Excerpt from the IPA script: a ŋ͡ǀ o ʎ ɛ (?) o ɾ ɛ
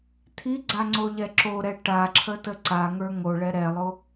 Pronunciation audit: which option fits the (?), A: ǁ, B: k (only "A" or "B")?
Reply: A